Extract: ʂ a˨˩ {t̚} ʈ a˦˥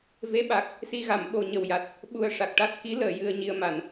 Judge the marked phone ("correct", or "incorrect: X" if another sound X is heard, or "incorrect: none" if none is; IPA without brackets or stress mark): incorrect: k̚